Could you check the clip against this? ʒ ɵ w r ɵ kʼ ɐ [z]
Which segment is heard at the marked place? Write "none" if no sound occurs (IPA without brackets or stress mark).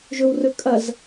z